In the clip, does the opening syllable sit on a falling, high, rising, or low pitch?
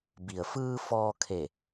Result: low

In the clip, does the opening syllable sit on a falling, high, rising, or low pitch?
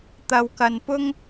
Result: low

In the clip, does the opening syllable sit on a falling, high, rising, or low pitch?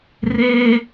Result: high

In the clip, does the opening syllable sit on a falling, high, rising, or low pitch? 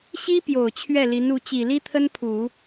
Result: high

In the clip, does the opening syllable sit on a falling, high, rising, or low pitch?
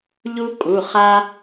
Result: high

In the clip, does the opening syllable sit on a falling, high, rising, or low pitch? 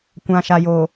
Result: low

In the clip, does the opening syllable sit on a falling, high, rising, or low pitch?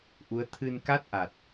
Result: rising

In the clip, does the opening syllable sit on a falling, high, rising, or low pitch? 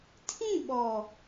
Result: falling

